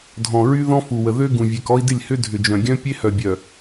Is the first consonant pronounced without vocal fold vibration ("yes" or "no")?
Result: no